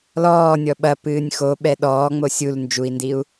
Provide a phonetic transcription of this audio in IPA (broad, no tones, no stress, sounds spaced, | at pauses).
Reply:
l ɔː nʲ ɔ ɓ ɐ p ɨː nʲ x o ɓ ɛ ɗ ɔː ŋ͡m o sʲ u l n d͡ʒ u i̯ n d i u̯